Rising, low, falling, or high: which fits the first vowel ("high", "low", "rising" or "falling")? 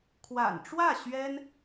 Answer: low